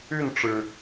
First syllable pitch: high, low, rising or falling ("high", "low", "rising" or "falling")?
falling